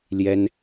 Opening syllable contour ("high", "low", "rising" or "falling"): high